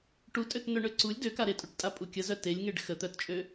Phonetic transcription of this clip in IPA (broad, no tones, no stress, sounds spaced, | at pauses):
ʈ u tʼ ø t n œ ɳ ø ǀ u lʲ d ø k a ɾ e tʼ u ʈ tʼ a pʼ u kʲ ə z œ t e lʲ ŋ e ɖ x ə t̪ œ t t͡ʃʼ ø